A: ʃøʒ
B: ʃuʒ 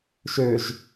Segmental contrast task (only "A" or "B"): A